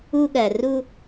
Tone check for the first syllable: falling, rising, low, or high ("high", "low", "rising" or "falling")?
high